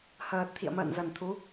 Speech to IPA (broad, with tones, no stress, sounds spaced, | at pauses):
h əː˨˩ t̚ t̪ʰ ḭ˧˨ ə̯ m ə̰ː˧˨ n z ə˨˩ n t̪ʰ u˨˦